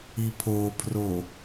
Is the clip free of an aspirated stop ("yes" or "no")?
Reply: no